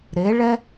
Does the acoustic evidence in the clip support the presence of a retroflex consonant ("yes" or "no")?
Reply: yes